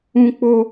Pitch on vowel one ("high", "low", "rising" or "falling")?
high